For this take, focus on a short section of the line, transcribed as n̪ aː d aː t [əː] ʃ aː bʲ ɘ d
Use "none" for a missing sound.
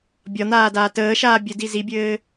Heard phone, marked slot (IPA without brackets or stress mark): əː